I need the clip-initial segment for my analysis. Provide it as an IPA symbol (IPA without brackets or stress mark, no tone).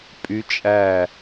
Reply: pʼ